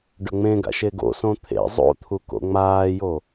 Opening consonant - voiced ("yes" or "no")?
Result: yes